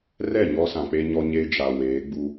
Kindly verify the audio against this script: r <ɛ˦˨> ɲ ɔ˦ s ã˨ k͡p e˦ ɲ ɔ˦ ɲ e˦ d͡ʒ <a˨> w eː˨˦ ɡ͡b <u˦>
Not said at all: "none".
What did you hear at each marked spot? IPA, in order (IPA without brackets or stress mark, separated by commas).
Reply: ɛ˦˨, a˨, u˦